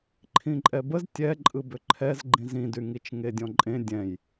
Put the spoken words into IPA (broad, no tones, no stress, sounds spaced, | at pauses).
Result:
ǃʰ ĩ ǃʼ ɛ b ə z tʲ ɛ ǃʼ ɯ b ʏ ǃʰ ɛ z ɡ͡ǃ ĩ z ĩ d y ŋ i t͡ʃ ŋ e dʲ ɔ̃ ǃʼ ẽ dʲ ɛ̃ j